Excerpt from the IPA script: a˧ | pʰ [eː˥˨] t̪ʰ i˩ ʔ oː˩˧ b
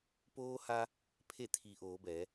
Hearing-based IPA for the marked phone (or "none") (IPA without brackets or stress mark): e˥˨